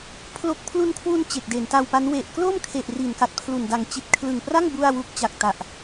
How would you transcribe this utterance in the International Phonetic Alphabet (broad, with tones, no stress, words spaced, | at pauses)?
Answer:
pʰlo˦˥k̚ pʰlu˧nkʰwu˧n t͡ɕe˨˩k̚de˩˦nta˧wpa˦˥n we˨˩ʔklo˥˩mkʰe˨˩ʔ ri˩˦nka˨˩t̚pʰlu˨˩nda˨˩ŋ t͡ɕi˨˩t̚kʰlɯ˨˩ŋpra˥˩ŋ bu˥˩a̯ wu˦˥k̚t͡ɕa˨˩k̚ta˨˩ʔ